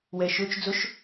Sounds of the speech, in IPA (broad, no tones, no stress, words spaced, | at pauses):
wɛʃøt͡ʃ d͡zɵʃ